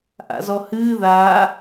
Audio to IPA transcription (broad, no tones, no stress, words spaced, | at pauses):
ʔa̰zɔhɨː ða